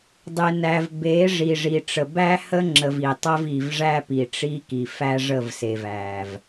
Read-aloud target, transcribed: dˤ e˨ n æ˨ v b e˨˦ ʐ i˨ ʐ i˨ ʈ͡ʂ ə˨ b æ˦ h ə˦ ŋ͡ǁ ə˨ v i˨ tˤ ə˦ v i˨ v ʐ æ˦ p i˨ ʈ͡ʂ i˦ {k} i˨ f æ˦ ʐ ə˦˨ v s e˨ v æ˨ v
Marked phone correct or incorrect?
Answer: correct